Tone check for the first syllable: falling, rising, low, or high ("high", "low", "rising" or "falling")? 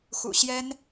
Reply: low